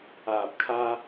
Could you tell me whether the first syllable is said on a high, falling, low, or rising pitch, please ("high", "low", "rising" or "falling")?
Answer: low